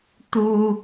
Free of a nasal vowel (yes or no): yes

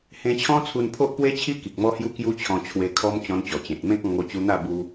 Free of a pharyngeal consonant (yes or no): yes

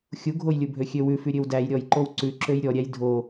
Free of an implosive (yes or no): yes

